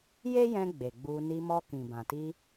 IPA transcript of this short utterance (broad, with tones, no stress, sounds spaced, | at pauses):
j e˦ j ɛ̃˧ ɡ͡b e˨ ɡ͡b u˧ n i˧ m ɔ˧ k ĩ˨ b ã˨ t i˧